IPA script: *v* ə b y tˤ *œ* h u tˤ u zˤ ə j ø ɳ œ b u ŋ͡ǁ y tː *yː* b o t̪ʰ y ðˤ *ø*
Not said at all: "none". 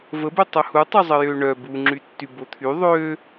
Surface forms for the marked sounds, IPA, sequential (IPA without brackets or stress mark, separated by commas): v, œ, y, ø